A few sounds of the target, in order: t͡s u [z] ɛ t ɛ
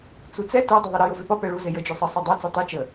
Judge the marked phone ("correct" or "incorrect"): incorrect